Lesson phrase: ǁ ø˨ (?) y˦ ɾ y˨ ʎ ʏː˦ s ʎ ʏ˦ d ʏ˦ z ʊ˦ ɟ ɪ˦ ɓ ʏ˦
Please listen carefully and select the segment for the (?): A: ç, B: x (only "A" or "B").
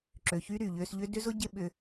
A